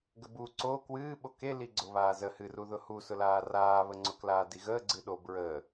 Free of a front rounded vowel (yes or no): yes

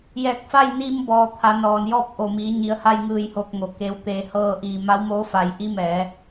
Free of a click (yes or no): yes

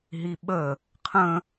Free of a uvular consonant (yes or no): no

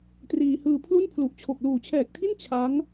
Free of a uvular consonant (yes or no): yes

